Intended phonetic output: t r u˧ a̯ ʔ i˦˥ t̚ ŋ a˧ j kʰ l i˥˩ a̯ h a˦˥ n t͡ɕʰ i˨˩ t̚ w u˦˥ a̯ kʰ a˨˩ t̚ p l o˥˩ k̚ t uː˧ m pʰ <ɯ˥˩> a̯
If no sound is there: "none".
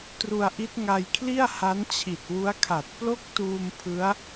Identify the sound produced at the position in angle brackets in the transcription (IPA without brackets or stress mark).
ɯ˦˥